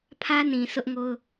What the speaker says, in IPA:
pʰ ä˦ n ĩ˨ sʰ ʊ˦ ʔ ŋ o˦ ʊ̯

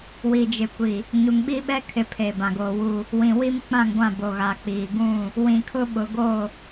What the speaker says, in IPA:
w i˨ d͡ʒ ɪ˨ kʷ i˨ | ɲ u˨ ŋ ɓ i˦ ɓ ɛ˦ kʰ ɪ˨ pʰ eː˨ b ã˨ ɡ oː˨ w u˦˨ | w ĩ˨ w i˦ m k͡p ã˦˨ ŋ ɡʷ ã˦˨ b o˨ ɣ a˨ k͡p iː˨ ɡ ũ˦˨ | w ĩ˨ kʰ ʊ˦ ɓ ʊ˨ ɡ o˦˨

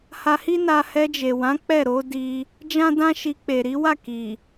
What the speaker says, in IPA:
h a˧ h i˦ n a˧ h ɛ˧ d͡ʒ e˨ w ã˨˦ k͡p ɛ˦˨ ɾ o˨˦ d i˧ | d͡ʒ ã˦ d ã˦ ʃ i˧ k͡p e˨ ɾ i˨˦ w a˦˨ k i˨

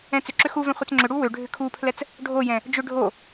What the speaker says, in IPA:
ɛ̃ t͡s ʏ ǁ ʏ x u v ɛ̃ χʷ ɛ t͡s ŋ͡ǁ ʏ ɽ u w ø ɖʱ ʏ kʰ u pʰ l ɛ t͡s | ɖʱ o j ɛ̃ | d͡ʒ ʏ ɖʱ o

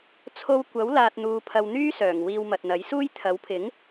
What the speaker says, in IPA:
t͡sʰ o˧ w kʷ ɐ˨˥ w l aː˧ t̚ n̪ uː˧ pʰ ɐ˧ w n̪ yː˥ s œː˨˩ ŋ w iː˧ w m ɐ˨ t̚ n̪ ɐ˨˥ j s uː˥ j t̪ʰ ɐ˨˥ w pʰ ɪ˨˥ ŋ

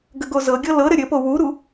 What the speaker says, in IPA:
ɡ ə ɡ o z ɤ ɡʲ ɤ l ɤ ɾ ɘ ɾʲ ɘ p o w u ɾ u

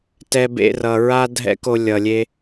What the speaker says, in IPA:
t ɛ˧ b ḛ˧ r ʌ˨ ɹ a˦ dʱ ɛ̰˦ k o˧ lʲ ʌ˨ lʲ e˧

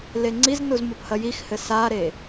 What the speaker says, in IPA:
l e ŋ͡ǀ i z n u z m o p h ɐ j i x h ɘ s a ɾ e

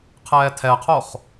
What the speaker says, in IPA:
qʰ ɛː tʰ ɛ qʰ o χ

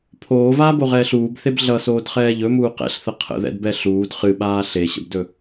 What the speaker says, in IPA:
pʰ oː v aː b o ʁ ɛː ɬ uː b θ e b ɮ ʌ s oː d χ ɛː ʎ ɵ m uː q ɛ̰ ɬ θ ə qʰ ə̰ ð ɛ̰ d b ɛ ɬ uː d χ ɨ ɓ aː ɬ e ɕ ə̰ b d ɵ

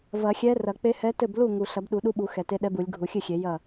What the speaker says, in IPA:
v ɐ˨˩˦ xʲ ɛ˧˥ r ɐ˨˩˦ k͡p e˧˥ h ɛ˧˥ t ɘ˥˩ b l u˥˩ ŋ u˨˩ ɬ ɐ˨˩˦ b ɗ u˨˩˦ ɗ u˧˥ ɓ u˨˩˦ x ɛ˨˩ t e˧˥ ɗ ɛ˧˥ b u˨˩˦ lʲ ɡʱ u˨˩˦ xʲ ɨ˥˩ xʲ e˨˩˦ j ɐ˥˩

